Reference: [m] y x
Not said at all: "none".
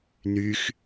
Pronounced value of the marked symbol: n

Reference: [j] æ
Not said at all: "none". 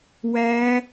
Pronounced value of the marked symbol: w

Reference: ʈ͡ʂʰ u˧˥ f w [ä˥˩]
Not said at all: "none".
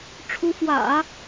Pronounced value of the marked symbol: ä̰˨˩˦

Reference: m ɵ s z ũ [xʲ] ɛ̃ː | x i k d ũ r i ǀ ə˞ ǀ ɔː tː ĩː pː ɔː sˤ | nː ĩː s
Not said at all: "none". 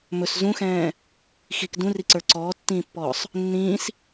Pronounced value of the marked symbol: x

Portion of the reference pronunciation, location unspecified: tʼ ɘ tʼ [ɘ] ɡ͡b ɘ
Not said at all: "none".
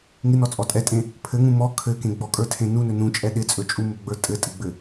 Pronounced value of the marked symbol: ɘ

